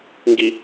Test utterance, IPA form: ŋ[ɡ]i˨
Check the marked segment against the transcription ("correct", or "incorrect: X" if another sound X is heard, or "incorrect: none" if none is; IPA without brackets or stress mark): correct